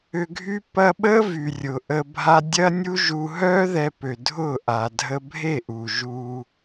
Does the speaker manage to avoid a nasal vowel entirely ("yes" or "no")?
yes